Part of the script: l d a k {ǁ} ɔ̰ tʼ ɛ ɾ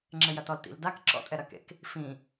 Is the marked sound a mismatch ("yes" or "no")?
no